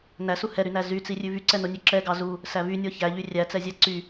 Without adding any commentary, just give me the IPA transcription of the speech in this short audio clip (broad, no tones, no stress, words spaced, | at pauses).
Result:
næsu hɛɾynæ zyt͡sirʲʉ vyǀɛnonʲø ǁɛɡɑ zu | sævynʲɔ çæʎy rʲæt͡sɛzʲæ ǀy